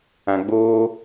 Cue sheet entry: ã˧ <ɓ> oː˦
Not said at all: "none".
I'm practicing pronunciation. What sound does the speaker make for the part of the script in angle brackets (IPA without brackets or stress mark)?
ɡ͡b